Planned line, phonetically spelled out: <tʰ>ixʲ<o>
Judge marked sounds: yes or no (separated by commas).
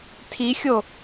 yes, yes